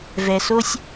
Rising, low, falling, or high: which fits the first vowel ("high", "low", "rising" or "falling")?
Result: low